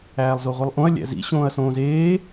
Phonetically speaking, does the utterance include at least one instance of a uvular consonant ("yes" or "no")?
yes